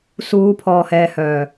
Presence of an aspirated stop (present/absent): present